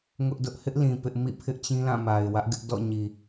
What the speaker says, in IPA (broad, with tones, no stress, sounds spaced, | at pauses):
ŋ ʊ˦ ʔ d ʊ˦ ʔ h ɪ˦ ʔ l ĩ˨ p ɪ˦ ʔ m ḭ˦˨ pʰ ɪ˦ ʔ t͡ɕ ĩ˦ l ã˦˨ m a˨ ɪ̯ w ä˦ ʔ ɡ ɪ˦ ʔ d ɔ̰˦˨ ɲ i˨